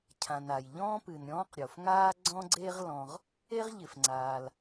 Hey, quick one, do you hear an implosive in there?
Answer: no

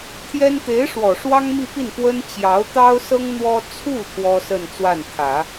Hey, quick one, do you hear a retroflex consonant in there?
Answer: yes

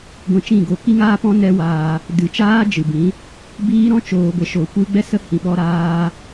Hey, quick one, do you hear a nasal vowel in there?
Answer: yes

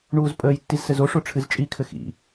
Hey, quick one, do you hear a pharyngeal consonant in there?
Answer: no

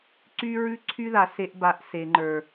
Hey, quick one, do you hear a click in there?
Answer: yes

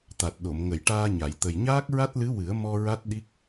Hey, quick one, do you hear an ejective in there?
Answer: no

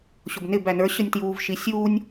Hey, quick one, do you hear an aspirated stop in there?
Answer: no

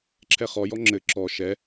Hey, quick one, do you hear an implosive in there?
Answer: no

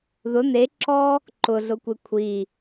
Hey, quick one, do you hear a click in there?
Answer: yes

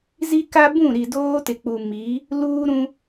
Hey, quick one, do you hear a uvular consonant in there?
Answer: no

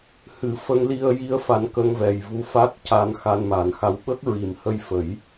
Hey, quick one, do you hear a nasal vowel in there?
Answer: no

